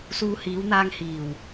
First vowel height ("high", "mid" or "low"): high